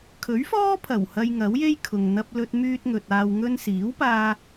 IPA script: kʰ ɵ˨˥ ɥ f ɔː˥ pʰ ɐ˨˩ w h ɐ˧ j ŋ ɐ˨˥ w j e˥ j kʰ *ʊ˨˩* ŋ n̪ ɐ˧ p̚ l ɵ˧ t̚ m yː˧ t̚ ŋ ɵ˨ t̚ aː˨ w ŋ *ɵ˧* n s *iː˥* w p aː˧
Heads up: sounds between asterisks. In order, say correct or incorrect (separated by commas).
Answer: incorrect, correct, incorrect